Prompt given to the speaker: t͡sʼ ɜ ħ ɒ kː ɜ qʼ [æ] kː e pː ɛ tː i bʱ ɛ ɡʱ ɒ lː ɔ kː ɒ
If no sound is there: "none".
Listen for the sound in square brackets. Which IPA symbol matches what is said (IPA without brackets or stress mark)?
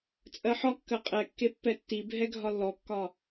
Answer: ɛ